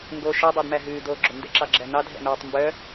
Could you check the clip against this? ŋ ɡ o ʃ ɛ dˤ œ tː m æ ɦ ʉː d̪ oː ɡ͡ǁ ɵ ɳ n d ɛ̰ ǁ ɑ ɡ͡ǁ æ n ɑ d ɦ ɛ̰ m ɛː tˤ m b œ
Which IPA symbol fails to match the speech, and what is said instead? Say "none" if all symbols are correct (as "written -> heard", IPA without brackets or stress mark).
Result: tː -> d